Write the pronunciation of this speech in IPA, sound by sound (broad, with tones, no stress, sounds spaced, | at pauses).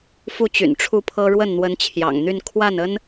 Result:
f u˥˩ t͡ɕ y̰˨˩ n ʈ͡ʂʰ u˥˩ pʰ ɤ˥ ɻ w ə˥˩ n n̪ w ə˧˥ n t͡ɕʰ j ɑ̰˨˩ ŋ n̪ y˥˧ n kʰ w a˥˩ n ə˥ n